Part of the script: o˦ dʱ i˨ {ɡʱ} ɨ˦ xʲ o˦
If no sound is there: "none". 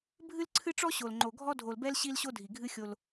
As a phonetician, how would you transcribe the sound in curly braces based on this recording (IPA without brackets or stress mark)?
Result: ɡʱ